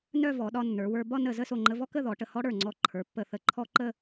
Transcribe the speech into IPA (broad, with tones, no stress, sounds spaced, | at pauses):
n œ˥˧ v ɔ˩˧ ɗ ɒ˧ nː ə˞˩˧ w ə˞˧ b ɒ˥˧ n ə˧˩ z ə˥˧ s o˧˩ ŋ͡ǃ ə˧ v ɔ˥ k ə˥˧ ð ɔ˩˧ ʈ ə˧˩ h ɔ˥ ɽ ə˞˧˩ ŋ͡ǀ ɔ˧ ǃʰ ə˞˩˧ pː ə˧˩ θ ə˧˩ ǃʰ ɔ˥ ǃ ə˥˧